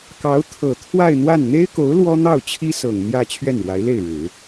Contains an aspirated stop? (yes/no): yes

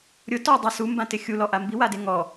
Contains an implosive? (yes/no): no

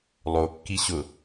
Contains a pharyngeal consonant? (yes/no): no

